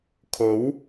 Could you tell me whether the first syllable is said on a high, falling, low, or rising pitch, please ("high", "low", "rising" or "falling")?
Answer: rising